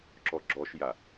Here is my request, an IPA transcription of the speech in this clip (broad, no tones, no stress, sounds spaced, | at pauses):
ǁ ɔ ɡ͡ǁ ɔ ʃ j a